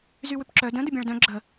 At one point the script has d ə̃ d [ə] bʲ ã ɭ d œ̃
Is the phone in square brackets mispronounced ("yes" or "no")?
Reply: no